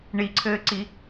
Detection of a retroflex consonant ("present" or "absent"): present